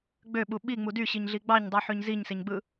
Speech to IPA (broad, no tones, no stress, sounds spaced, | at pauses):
ɡ͡b ø ɓ u ɓ i ŋ͡m u d y ɕ i ɲ ɮ i ɡ͡b ɑ ɲ dˤ u ħ ø ɲ z i ɲ s e ɲ ɡ͡b ɯ